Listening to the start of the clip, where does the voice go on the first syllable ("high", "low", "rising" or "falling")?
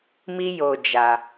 high